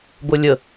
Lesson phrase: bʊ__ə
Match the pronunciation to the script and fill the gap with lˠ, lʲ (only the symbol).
lʲ